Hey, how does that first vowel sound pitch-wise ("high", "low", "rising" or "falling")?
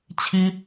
high